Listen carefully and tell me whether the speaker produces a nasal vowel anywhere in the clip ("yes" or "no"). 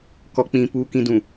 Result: yes